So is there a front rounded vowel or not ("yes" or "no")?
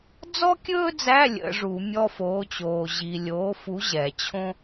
no